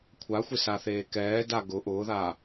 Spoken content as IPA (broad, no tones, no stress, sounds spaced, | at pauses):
kʷʰ a xʷ ɪ s a θ eː k ɛː d a ɡ ʊ ʔ ʊː ð aː